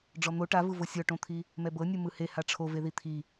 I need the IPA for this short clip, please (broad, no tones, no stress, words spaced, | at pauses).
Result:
ɖ͡ʐɔn̪o ʈavɯvo sʲɔʈõt̪ʰi | mɛbɤ nʲɯmɯheha ʈ͡ʂʰove ðit̪ʰi